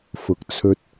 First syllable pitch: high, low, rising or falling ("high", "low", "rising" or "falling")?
low